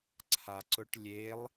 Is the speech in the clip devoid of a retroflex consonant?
no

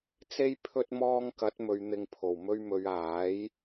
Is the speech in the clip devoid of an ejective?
yes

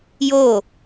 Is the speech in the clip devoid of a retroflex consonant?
yes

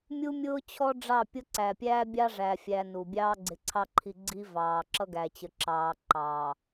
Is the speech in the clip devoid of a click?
no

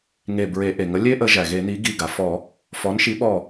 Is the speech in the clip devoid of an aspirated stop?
yes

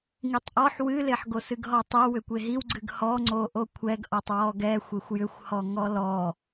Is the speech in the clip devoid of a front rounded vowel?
no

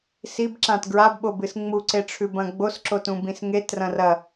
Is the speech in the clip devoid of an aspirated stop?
no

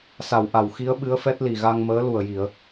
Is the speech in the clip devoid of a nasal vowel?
yes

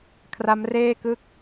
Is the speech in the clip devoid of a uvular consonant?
yes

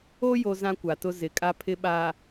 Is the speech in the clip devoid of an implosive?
no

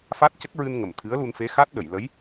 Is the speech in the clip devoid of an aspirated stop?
no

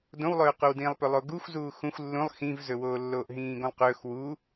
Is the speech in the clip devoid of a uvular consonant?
no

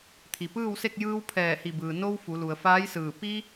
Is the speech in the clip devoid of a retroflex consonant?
yes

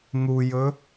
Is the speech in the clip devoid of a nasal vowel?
yes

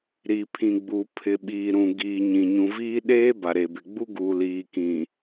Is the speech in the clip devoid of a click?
yes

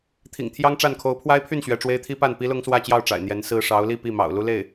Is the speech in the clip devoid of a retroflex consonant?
no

